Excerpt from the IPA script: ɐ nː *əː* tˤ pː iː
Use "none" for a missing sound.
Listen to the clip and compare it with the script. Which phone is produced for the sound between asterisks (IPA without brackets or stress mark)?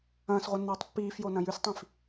ɐː